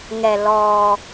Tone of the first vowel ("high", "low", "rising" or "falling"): low